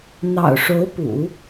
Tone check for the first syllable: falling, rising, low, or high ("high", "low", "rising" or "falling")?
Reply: low